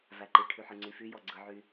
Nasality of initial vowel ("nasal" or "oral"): oral